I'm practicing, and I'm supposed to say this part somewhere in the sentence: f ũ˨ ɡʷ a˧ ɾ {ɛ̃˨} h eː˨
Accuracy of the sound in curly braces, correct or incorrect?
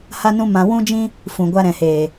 correct